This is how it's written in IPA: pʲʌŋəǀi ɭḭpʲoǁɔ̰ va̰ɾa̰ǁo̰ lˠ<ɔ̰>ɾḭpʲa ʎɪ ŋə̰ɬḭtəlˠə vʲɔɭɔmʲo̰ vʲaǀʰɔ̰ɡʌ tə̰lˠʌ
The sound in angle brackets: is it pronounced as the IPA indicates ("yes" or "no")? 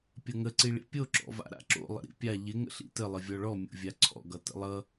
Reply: no